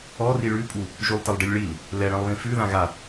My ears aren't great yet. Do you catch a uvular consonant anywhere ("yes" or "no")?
no